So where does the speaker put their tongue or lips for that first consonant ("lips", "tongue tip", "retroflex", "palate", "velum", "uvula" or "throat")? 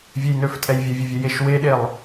lips